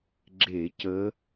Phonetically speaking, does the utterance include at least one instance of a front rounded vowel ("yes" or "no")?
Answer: no